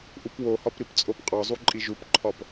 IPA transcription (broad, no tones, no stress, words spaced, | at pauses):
ʔupwohɒp ɾipt͡sʼopqʼɒzˤu ǃʼiʒupǃʰɒp